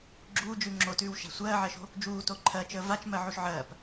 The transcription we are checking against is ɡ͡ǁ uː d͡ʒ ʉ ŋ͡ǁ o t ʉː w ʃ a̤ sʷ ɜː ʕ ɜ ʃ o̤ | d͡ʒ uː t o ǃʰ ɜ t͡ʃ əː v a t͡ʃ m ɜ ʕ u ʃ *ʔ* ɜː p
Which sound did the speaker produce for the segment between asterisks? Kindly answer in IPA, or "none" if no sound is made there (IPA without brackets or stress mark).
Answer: ʕ